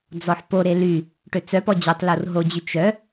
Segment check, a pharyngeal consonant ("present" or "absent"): present